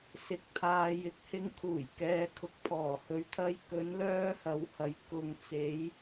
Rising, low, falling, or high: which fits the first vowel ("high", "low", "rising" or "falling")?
low